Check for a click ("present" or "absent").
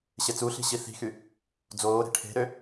absent